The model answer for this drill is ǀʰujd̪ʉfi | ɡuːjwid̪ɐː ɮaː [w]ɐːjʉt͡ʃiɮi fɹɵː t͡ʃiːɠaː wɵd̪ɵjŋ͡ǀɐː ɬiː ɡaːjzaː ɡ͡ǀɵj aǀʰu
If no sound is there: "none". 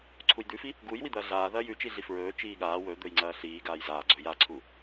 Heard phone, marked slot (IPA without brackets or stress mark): ð